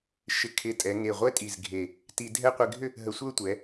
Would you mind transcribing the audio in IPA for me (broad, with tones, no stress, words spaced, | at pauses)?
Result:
ʃɪ˧ kʰɪ˧˩tʼɛ˩˧ ŋe˧˩ʁʷɛ˥tʼi˧˩z ɡʱe˧˩ | ti˧dʱɛ˥˧ qʷɪ˧ɡʱʏ˥˧ | ɦə˧˩sʷə˞˥˧tʷɛ˩˧